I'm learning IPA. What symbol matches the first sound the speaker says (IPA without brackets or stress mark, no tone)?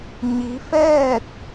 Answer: ɲ